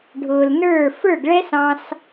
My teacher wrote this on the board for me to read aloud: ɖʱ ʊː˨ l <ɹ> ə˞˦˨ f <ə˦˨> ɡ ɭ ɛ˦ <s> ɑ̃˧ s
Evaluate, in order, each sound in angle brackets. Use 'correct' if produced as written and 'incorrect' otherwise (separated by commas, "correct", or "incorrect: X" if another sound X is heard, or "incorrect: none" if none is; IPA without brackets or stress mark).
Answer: incorrect: n, incorrect: ə˞˦˨, correct